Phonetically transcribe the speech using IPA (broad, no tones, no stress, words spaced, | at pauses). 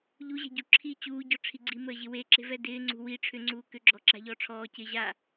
ʎuʑɛ̤ɟu ǁʰi t͡ɕuːɟɔʈ͡ʂʰi ɡ͡ǀiməːʑɪ weǁe̤vɛ dɪː ŋ͡ǀṳ wi ʈ͡ʂʰʏŋ͡ǀuː kʏ ɡ͡ǁɔ ǁa̤ʎɔː ʈ͡ʂʰɔːcɪː ʑa